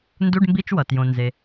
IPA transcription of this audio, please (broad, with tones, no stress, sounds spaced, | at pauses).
n d u˧˥˧ ɖ m b i˧˥˧ t͡ʃ w ʌ˩ t j õ˩ n z e˩